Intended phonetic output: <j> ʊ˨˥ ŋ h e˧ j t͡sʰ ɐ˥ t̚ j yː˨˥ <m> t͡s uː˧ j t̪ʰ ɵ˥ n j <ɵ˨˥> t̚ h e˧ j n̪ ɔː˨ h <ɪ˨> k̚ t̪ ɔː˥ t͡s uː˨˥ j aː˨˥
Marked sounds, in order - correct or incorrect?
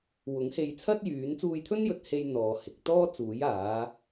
incorrect, incorrect, incorrect, incorrect

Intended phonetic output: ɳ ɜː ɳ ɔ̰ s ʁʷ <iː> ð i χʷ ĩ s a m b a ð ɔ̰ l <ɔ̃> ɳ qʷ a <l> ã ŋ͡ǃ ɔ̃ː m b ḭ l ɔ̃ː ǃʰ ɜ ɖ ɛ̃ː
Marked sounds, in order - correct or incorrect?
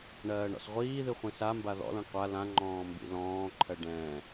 correct, correct, correct

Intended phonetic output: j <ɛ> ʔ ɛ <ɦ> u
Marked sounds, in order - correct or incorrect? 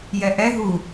correct, correct

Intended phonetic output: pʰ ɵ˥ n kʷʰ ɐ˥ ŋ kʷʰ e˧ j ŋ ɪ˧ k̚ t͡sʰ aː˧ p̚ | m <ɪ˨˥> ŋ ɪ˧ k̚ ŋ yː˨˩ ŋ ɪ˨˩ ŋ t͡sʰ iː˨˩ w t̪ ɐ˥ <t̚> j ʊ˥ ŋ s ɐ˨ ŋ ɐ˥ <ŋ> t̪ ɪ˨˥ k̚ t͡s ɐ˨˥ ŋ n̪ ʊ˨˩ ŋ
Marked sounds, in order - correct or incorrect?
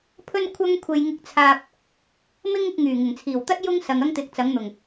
incorrect, correct, correct

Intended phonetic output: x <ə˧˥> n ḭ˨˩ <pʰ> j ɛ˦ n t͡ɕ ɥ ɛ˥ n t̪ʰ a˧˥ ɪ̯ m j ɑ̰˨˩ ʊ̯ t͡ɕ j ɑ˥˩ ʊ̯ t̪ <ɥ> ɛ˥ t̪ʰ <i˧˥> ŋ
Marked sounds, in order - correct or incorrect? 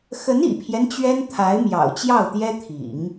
correct, correct, incorrect, incorrect

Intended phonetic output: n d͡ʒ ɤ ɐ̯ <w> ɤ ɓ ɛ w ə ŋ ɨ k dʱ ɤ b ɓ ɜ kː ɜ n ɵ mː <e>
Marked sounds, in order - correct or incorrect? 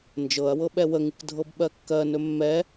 correct, incorrect

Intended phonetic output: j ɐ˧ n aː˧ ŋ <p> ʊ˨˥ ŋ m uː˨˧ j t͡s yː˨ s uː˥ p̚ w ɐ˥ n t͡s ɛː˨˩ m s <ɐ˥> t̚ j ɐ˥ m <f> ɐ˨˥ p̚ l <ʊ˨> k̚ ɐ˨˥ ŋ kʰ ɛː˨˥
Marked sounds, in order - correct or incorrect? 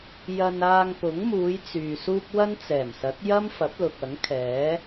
correct, incorrect, correct, correct

